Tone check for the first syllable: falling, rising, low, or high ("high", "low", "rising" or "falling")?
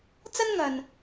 high